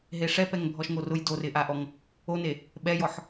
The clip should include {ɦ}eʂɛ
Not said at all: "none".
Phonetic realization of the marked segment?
ɦ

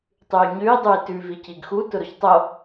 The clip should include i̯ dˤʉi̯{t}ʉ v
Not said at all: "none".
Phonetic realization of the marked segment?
t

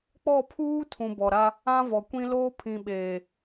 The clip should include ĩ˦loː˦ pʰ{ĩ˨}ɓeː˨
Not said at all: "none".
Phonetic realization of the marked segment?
ĩ˨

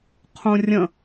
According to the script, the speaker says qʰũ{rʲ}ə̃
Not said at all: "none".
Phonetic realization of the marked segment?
rʲ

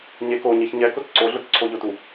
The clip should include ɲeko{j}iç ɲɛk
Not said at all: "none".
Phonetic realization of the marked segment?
ɲ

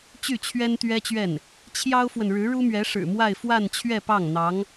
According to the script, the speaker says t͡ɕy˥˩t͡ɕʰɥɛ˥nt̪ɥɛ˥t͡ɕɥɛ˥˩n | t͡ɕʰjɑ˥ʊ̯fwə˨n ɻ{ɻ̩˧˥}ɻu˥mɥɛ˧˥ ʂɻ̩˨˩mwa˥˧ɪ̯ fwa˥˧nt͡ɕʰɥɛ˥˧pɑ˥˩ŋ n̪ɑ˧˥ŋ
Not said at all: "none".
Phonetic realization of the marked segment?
ɻ̩˧˥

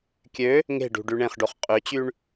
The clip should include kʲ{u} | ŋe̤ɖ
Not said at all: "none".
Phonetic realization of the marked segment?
ø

